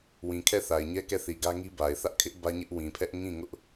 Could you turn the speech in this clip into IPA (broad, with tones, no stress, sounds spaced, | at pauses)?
w ĩ˨ kʰ ɛ˦˨ θ a˨ ɪ̯ ɲ ɛ˦ k ɛ˦˨ θ i˨ ɡ ä˦ ŋ i˦ b a˨ ɪ̯ θ ä˦ ʔ kʰ ɪ˦ ʔ b ä˦ ɲ ɪ˦ ʔ w ĩ˨ pʰ ɛ˦ ʔ ŋ ĩ˦˨ ŋ ʊ˦ ʔ